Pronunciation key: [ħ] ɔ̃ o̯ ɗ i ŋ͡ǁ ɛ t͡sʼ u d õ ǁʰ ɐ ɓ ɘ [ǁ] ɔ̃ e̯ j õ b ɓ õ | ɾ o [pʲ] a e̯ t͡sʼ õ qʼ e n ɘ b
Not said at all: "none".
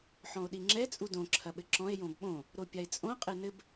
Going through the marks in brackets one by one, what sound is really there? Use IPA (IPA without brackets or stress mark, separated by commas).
ħ, ǁ, pʲ